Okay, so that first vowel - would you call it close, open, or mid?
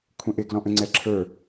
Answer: mid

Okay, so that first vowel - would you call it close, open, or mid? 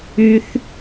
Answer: close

